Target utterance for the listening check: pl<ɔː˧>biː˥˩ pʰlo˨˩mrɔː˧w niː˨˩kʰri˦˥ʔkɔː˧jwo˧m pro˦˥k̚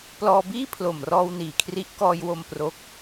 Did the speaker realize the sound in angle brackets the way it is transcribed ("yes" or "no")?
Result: yes